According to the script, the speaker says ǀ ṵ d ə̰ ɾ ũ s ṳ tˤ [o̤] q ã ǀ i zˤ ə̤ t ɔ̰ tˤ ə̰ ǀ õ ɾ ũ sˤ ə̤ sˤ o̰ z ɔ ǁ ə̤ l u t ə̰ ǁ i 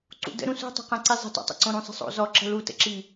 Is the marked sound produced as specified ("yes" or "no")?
yes